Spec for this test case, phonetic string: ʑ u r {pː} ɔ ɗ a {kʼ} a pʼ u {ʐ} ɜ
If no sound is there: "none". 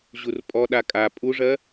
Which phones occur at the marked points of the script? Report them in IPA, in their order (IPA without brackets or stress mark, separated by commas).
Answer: pʼ, kʼ, ʐ